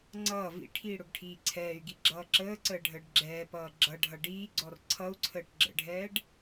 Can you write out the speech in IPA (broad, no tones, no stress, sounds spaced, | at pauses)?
ŋ͡ǀ ʌː v ḭ ʈʰ iː ɽ ʊ ɡ ʈʰ iː ǀʰ ɛː y̯ ɡ i ɡ͡ǁ ʌː ǁ əː ǀ əː ɖʱ əː ɖ ɡ͡ǁ ɛː p ʌː ɡ͡ǁ ʌ ɖʱ ʌ ɖ iː ɡ͡ǀ ɔ r ǀʰ ʌ u̯ ǀʰ əː ʈ ɡ͡ǁ ə̰ ɖʱ ɛː ɖ